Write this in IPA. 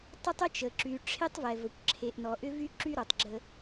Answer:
tˤ ə˦ tˤ ə˦ t͡ʃ ə˨ ǁ y˨ ʈ͡ʂʰ e˦ tˤ v ɛ˨ v ə˨ kʷ ǁʰ e˨ ʔ n ɔ˨ ʔ ʏ˦ v y˦ ǁ y˦ ɾ o˨ tˤ ɡ͡ǁ ə˦

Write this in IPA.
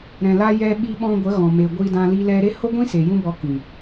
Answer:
ɾ ɛ̃˨ l a˧ j ɛ˧ ɓ i˧ ɓ ɔ̃˧ ɡʷ ə˨˦ ɣ ɔ̃˨ m e˨ ɡʷ i˧ d ã˧ l i˧ l ɛ˧ ɾ e˦ h o˦ ɡʷ ĩ˦ s e˨ j ũ˦ b ɔ˧ k ĩ˨

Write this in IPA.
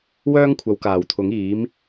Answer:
w œː˥ ŋ kʷʰ ɐ˨˧ w k aː˨˩ w t̪ʰ ʊ˨˥ ŋ iː˨˥ m

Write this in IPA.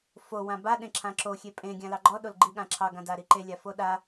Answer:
f o w ã b a ɗ ẽ ǁʰ ã ǁ o xʲ e pʼ ẽ ɡʲ ã l ɑ ɡ͡ǃ ɔ ɗ o l ɡ͡ǃ i ɠ ã ǁʰ ɑ ɡ ã d a ɾ i ǃ e lʲ a f o ɗ a

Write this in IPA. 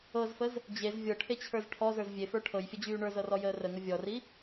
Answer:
ɤ z f ə z | d͡ʑ e z vʲ ɤ ʈʰ e t͡ɕʰ ə˞ z ʈʰ ɔ z ə˞ z vʲ e f ə˞ ʈʰ ɤ j fʲ ə d͡ʑ yː ɳ ə˞ z ɤ r ɔ j əː r ə ŋ ə vʲ ɔ r i

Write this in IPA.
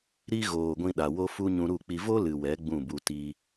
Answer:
ɾ i˦ ɣ oː˨ ɡʷ ĩ˧ ɗ a˨ w o˦ f u˦ ɲ ũ˧ ɾ u˦˨ k͡p i˧ v o˦ l ɨ˨ w ɛ˨˦ ɡ͡b ũ˦˨ b u˧ t i˧

